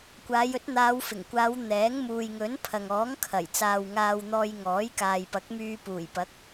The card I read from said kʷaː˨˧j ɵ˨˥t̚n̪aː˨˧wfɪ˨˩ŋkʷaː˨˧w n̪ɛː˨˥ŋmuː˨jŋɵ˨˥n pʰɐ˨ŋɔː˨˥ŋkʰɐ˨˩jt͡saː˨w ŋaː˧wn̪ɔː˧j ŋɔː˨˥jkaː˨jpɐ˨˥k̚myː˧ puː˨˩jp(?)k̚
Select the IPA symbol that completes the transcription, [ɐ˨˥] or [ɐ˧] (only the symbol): ɐ˨˥